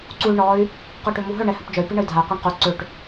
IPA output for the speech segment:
ǀuy̯ɳɔy̯ | qoʈømuɦœ ɳɛhœpd͡ʒœy̯ piɳəy̯dʱay̯ qʷəɳqu ǀøʈ

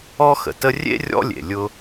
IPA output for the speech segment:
ɔ˥xə̰˨tə˥ rʲḛ˥rʲɔ̰˦lʲḛ˩ lʲʊ˦

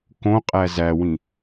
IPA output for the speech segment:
kõqʼæ zæwĩ

